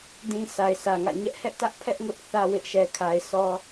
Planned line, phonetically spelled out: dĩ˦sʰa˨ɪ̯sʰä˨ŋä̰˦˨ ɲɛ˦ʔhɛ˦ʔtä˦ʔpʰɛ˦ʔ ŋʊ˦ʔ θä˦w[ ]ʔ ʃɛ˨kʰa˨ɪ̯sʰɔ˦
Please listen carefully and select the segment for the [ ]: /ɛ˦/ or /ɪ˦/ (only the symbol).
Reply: ɪ˦